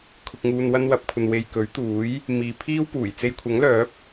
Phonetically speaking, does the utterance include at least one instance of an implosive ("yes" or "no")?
no